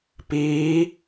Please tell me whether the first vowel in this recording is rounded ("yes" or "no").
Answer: no